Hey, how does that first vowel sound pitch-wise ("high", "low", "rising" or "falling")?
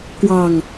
low